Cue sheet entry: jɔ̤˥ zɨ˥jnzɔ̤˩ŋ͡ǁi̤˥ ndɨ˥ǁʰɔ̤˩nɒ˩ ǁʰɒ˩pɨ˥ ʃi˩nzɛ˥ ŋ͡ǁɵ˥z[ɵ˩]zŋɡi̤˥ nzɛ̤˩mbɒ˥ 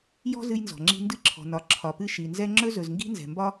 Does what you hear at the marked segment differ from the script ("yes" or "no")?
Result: no